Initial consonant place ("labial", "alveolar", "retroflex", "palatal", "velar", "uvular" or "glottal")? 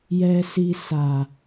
palatal